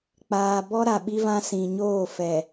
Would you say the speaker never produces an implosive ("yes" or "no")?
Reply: no